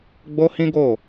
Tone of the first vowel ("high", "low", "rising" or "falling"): high